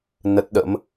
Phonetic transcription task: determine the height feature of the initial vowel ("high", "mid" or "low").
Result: mid